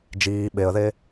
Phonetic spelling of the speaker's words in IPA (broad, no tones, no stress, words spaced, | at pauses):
d͡ʒiː ɓeə̯ðe